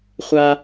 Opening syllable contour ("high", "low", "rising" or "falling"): high